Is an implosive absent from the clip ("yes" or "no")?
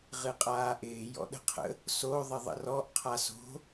no